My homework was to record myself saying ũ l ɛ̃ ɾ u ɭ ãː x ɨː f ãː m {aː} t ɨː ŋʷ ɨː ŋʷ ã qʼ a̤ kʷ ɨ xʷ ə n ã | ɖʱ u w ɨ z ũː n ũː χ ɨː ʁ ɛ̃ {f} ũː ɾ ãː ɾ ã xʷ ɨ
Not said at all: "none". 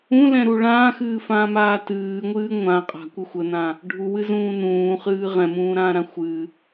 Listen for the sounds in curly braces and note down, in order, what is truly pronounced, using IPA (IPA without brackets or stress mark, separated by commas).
aː, m